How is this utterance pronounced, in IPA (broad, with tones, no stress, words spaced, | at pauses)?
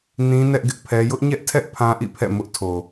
nĩ˦ nɛ˦ʔ ɡɪ˦ʔpʰɛ˦ jʊ˦ʔɲɛ˦ʔtʰɛ˦ʔ pʰã˦ʔḭ˦˨pʰɛ̰˦˨ mʊ˦ʔtʰo˨